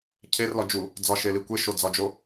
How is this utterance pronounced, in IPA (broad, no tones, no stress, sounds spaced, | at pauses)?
cʰ e r l ɒ d͡ʒ u | d͡z ɒ ʃ e l i kʷ e ʃ o d͡z ɒ d͡ʒ o